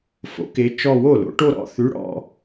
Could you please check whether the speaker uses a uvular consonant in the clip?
no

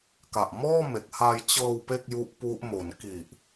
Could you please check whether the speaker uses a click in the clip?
no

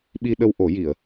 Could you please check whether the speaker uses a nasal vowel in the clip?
no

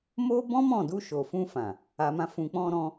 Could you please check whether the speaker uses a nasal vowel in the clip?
yes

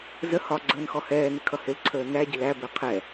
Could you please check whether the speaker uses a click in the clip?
yes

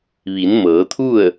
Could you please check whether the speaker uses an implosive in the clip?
no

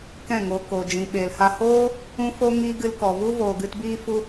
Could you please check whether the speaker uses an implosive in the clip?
yes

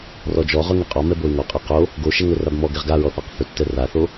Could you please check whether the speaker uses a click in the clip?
no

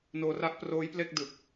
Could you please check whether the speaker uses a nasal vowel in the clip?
no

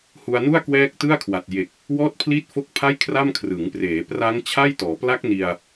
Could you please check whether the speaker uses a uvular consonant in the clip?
no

